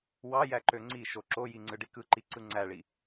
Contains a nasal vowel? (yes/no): no